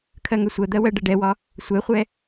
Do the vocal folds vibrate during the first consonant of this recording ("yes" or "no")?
no